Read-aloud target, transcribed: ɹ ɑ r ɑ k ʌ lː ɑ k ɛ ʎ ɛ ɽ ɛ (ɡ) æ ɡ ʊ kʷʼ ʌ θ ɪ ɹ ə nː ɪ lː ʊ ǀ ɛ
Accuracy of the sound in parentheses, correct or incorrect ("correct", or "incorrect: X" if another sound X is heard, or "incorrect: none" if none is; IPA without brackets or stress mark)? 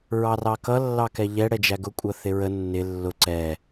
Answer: incorrect: d͡ʒ